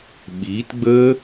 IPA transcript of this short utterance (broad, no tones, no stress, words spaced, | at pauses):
ɓiːtɡ͡bəː